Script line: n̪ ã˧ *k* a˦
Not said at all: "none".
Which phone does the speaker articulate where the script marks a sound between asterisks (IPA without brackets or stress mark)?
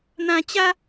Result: t͡ɕ